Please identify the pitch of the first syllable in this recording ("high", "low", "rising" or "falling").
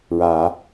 low